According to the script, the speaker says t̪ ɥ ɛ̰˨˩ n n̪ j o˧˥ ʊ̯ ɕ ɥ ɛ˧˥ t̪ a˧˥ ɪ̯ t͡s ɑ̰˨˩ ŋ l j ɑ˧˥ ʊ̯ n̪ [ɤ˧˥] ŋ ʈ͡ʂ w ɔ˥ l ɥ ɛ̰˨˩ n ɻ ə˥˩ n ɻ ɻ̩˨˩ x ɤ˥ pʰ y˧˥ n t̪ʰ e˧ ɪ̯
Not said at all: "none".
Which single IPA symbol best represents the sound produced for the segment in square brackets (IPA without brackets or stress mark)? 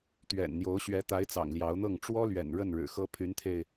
ɤ˥˩